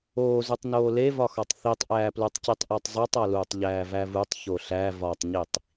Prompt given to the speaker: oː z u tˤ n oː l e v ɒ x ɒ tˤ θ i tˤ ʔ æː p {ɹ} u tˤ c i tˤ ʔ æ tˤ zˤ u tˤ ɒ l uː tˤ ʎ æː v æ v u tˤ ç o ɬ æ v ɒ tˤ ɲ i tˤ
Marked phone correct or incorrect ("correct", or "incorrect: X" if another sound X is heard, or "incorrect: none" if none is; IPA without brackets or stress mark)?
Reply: incorrect: l